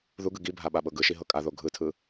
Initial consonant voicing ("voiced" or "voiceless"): voiced